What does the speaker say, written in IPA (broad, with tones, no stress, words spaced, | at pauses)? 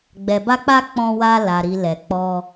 ɡ͡bɛ˨ba˧k͡pa˧ k͡pɔ̃˧wa˧la˨ɾi˨ lɛ˨k͡pɔ˧